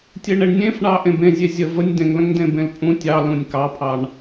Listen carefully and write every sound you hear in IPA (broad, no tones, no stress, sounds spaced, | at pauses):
tʲ e ɳ e ɳ nʲ ẽ f ɳ ɑ ʔ ẽ b ẽ zʲ e zʲ ə v ə nʲ d ẽ ŋ l ə̃ ŋ d ẽ b ẽ l pʼ ũ tʲ ɑ l ũ nʲ k ɑ pʰ ɑ ɳ